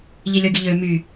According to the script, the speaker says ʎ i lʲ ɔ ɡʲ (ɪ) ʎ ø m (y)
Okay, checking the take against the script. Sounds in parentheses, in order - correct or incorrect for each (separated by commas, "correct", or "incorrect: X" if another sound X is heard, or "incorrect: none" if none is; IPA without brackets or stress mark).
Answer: incorrect: ə, correct